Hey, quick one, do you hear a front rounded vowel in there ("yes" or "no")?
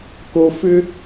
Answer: yes